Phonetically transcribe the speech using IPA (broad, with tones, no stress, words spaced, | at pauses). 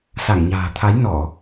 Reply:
sa˧˩ŋɲa̤ː˨˩ t̪ʰa˨˦jnɔ˧˩˨